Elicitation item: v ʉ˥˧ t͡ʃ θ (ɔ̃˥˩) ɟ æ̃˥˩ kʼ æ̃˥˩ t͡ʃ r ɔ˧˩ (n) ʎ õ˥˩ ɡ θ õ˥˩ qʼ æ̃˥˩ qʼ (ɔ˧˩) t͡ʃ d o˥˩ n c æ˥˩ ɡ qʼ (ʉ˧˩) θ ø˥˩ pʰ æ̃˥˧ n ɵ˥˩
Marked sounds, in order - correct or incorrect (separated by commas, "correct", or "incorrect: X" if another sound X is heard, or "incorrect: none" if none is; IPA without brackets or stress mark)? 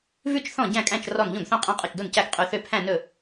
correct, correct, correct, correct